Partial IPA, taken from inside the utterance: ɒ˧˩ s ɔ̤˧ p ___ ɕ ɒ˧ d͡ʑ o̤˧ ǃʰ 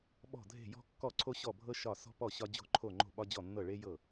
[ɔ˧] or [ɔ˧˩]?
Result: ɔ˧˩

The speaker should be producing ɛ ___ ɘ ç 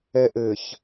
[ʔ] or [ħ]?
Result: ʔ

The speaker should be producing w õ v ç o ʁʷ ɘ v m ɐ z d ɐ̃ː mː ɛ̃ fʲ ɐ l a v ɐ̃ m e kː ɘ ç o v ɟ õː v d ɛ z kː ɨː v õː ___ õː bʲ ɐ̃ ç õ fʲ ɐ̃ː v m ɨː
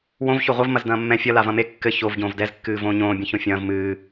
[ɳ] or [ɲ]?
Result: ɲ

